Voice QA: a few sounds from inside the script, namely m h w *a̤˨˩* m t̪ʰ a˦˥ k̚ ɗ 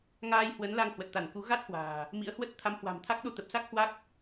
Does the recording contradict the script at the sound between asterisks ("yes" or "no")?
no